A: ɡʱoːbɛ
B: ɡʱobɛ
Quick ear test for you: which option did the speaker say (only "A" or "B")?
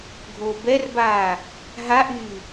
A